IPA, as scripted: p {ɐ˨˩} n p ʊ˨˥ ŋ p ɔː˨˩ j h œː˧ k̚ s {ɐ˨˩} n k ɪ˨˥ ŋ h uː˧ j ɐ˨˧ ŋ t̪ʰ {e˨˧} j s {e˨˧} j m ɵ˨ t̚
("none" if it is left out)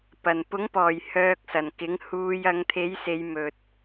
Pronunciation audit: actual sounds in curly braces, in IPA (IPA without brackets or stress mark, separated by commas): ɐ˨˩, ɐ˨˩, e˨˥, e˨˧